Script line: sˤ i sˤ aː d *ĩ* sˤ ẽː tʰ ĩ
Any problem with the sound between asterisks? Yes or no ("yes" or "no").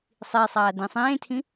no